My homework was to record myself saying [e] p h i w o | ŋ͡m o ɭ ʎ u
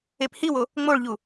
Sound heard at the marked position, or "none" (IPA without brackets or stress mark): e